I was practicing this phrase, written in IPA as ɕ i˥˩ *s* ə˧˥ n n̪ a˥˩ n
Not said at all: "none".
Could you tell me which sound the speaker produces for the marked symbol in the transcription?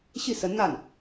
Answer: s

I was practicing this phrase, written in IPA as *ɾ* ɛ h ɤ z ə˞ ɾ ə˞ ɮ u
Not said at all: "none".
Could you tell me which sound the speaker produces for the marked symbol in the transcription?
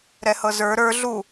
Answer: ɾ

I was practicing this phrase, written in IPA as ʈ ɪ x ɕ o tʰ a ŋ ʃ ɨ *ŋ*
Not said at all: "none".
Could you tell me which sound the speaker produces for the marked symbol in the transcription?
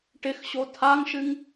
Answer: ŋ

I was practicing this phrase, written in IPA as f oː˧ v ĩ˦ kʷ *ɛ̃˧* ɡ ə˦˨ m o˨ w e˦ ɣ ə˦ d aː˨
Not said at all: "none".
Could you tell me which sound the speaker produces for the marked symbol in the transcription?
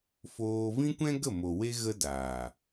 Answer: ɛ̃˦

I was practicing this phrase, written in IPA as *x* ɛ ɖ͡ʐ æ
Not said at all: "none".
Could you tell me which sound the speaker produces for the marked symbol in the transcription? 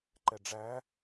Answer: ǃ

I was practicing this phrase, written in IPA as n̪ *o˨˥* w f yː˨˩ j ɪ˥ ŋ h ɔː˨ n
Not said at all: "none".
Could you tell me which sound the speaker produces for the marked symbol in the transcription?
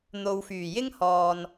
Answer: o˨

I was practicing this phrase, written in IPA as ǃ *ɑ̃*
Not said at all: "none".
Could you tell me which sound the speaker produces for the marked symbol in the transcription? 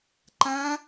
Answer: ã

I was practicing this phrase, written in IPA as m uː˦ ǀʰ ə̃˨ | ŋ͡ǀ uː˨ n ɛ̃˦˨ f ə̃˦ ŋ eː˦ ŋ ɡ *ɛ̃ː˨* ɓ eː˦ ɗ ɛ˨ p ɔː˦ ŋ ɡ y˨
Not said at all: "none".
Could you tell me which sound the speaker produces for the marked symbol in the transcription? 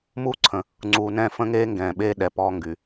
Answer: ɛ̃ː˨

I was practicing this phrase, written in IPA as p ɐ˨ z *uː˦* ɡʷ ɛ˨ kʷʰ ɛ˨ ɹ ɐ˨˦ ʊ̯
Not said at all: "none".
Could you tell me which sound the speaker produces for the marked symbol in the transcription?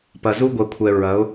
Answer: u˦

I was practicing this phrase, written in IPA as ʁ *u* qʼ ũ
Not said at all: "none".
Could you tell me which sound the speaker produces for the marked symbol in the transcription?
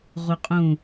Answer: u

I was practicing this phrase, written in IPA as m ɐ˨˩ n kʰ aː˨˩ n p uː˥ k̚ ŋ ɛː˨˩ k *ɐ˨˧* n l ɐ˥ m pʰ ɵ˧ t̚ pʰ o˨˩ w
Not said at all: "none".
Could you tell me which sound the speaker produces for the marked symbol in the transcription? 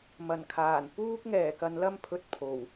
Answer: ɐ˨˧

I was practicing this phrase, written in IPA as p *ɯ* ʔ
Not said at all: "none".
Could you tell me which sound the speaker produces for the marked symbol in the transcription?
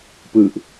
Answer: ɯ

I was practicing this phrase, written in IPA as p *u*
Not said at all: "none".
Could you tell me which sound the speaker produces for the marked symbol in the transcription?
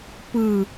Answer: ɯ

